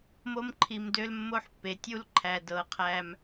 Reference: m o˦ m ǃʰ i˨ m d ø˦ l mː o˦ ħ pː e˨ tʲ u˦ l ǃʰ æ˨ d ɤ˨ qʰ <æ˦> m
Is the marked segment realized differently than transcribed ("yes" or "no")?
no